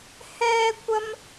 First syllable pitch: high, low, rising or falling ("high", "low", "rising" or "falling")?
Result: high